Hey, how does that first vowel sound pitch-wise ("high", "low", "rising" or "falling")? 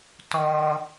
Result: high